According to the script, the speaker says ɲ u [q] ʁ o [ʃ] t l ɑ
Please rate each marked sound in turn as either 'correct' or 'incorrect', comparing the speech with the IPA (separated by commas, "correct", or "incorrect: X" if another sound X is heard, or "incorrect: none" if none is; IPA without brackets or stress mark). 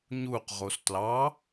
correct, incorrect: s